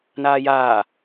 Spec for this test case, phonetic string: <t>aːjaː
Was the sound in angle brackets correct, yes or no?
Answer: no